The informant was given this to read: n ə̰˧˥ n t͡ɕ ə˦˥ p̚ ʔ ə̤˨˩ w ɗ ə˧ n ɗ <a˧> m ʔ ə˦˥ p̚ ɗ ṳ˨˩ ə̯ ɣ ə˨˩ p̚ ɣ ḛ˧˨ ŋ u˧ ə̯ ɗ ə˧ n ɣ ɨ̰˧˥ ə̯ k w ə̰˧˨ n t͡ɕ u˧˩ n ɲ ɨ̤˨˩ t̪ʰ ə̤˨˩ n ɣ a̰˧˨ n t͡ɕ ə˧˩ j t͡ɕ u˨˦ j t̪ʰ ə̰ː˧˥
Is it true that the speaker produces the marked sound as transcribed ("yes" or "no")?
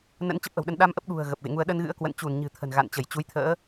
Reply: yes